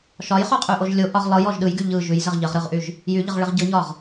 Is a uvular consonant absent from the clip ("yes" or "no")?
no